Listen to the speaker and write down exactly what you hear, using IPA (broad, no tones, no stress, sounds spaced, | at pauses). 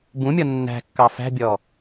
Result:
b ũ mʲ ɔ nː æ̤ kː ɑ f æ̤ bʲ ɔ